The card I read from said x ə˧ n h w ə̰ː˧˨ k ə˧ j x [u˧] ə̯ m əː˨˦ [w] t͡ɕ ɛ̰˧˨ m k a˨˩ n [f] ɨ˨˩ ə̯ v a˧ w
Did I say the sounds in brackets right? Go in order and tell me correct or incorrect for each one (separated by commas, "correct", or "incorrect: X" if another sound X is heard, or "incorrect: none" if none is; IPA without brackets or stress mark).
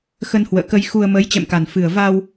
correct, incorrect: j, correct